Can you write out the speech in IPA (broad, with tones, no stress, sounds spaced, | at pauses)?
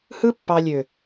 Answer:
h ɯ˦ pː ɑ˧ lʲ ø˨